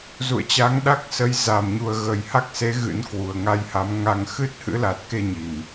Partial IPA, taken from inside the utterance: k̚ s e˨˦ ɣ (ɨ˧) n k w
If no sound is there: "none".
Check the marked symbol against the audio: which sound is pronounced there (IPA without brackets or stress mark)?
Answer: ɨ̰˧˥